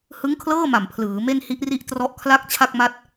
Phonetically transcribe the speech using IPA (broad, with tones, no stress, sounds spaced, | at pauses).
h ɯ˦˥ ŋ kʰ l ɤː˥˩ m a˨˩ m pʰ l ɯː˩˦ m e˥˩ n h i˦˥ ʔ r i˥˩ ʔ t r ɔ˦˥ ʔ kʰ l a˥˩ k̚ t͡ɕʰ a˥˩ k̚ m a˥˩ t̚